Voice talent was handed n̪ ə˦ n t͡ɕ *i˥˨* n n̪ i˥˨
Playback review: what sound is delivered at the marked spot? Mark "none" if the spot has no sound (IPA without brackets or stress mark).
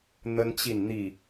i˥˨